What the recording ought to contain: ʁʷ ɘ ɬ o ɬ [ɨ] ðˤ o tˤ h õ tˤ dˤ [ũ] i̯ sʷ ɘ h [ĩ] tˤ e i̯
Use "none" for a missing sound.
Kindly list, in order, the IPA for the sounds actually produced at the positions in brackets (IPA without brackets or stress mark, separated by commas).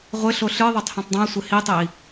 ɨ, ũ, i